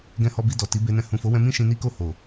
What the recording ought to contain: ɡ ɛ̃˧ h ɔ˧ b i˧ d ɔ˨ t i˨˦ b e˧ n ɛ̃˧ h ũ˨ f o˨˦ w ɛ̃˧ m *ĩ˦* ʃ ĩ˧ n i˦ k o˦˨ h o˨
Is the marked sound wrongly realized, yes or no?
no